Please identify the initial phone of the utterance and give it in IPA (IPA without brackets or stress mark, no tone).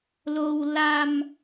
l